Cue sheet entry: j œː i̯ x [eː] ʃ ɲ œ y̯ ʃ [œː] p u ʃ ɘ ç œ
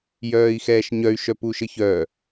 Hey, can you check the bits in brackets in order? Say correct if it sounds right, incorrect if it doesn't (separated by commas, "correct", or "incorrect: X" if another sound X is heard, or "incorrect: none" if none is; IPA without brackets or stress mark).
incorrect: ɛː, incorrect: œ